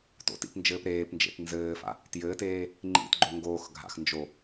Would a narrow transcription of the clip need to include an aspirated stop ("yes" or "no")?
no